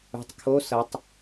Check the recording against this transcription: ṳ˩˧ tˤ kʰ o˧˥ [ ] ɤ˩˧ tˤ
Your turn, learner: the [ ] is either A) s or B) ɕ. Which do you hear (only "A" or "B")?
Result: A